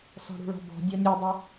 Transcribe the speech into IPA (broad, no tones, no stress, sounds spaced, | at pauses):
s ɔ̤ ɽ ṳ ɭ ɔ̤ b ɔ̤ dʲ ɔ nʲ u dˤ u